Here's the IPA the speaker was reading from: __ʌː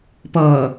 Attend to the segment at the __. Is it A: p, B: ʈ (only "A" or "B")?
A